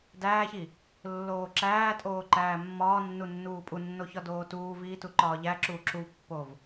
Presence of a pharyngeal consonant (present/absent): absent